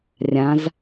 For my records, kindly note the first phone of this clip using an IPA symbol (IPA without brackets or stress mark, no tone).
rʲ